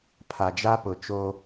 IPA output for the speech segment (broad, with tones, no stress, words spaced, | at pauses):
pʰa˨d͡ʒa˦pʊ˨ t͡ʃo˦